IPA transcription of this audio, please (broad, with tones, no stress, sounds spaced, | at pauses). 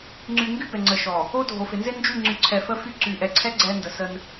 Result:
ŋ͡ǀ y˨ ŋ ɡ y˦ b ɛ˨ ŋ͡ǀ ə˨ ʃ ɔ˨ | o˦ dʱ o˨ f ɪ˨ n z ɪ˦ n d͡ʒ y˦˨ ŋ͡ǀ y˨ ǀʰ ɛ˨ f ə˦ f y˦ ǀ y˨ ʔ ɛ˨ ǀʰ ɛ˦ ɡ͡ǀ ɛ˦ n d ə˨ s ə˦ n